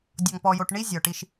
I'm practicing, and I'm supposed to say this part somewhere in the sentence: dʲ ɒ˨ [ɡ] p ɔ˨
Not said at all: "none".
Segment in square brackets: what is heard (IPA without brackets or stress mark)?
ŋ